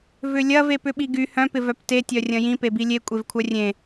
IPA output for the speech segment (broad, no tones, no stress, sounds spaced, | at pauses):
v ʏ lʲ ɐ v e p ʏ ɓ i ɡ y h œ̃ p ɪ v œ p t e tʲ œ rʲ ɐ̃ j ĩ p e b i lʲ e kʷʼ e v kʷʰ œ rʲ ẽ